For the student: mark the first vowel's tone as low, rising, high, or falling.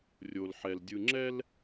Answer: low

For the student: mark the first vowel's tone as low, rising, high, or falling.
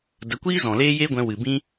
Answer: rising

